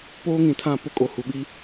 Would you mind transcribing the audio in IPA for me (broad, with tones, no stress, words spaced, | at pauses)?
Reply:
poː˦ŋĩ˨tʰã˦˨pʊ˦ kʼo˨hu˨ɓi˦